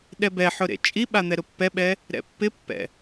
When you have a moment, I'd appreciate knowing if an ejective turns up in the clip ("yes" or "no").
yes